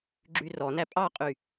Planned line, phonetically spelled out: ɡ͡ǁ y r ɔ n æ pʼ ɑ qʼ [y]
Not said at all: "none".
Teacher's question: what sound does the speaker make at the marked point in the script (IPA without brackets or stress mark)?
y